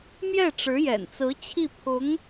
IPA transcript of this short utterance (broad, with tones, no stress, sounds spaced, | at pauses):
m j ɛ˥˩ ʈ͡ʂ ɻ̩˧˥ j ɛ̰˨˩ n t͡s ɹ̩˧˥ t͡ɕʰ i˥˩ pʰ ʊ˧˥ ŋ